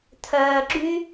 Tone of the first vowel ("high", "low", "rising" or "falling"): low